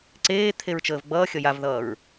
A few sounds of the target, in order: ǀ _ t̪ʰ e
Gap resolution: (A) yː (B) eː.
B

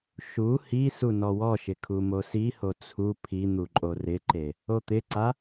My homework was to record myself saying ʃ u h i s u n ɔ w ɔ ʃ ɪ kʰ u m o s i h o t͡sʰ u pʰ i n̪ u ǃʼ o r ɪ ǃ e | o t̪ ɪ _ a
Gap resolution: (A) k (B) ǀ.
B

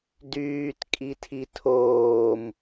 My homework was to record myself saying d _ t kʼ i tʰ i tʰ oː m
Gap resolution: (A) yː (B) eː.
A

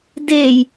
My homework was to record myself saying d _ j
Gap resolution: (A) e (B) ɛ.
A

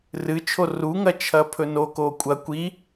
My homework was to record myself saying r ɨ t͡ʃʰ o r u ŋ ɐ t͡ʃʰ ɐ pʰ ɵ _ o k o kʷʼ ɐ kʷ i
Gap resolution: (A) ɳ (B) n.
B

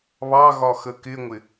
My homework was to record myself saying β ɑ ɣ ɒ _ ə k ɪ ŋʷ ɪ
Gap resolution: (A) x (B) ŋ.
A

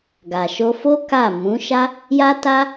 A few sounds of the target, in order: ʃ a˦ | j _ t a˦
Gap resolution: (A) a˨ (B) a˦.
B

